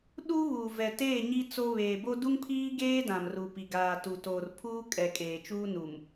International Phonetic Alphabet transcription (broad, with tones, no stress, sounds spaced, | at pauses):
ɗ u˦ β uː˨ v ɛ˨ t eː˦˨ ɲ i˦ t͡s o˦ β eː˨ b o˦ d u˦ ŋ pʰ iː˦ ɡ eː˦ d ã˨ m r u˨ p i˨ ɡ aː˨ t u˨ t oː˨ r pʰ uː˦ kʼ ɛ˨ kʼ eː˨ t͡ʃ uː˦ n u˨ m